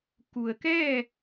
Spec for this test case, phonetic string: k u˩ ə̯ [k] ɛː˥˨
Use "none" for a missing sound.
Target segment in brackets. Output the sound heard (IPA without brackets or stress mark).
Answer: k